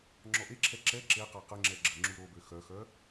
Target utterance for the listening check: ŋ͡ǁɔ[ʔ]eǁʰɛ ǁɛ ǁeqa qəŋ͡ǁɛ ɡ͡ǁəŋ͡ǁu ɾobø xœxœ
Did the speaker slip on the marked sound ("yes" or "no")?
no